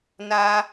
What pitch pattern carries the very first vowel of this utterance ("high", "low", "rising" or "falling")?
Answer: high